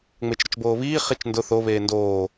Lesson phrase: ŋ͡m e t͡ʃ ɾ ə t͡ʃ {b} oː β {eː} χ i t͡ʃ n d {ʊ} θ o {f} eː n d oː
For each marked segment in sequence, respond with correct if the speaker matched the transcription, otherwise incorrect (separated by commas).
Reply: correct, incorrect, correct, incorrect